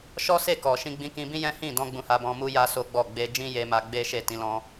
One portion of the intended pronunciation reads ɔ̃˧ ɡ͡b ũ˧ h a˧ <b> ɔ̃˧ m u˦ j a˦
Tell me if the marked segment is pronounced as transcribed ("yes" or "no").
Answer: yes